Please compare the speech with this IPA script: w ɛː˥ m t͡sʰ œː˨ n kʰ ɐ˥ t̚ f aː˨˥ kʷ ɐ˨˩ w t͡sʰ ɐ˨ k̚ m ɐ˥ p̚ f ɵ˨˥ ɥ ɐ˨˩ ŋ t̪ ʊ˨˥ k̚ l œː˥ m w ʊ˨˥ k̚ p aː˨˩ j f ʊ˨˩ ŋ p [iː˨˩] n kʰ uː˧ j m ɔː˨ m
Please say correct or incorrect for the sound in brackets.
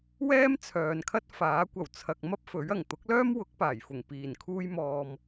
correct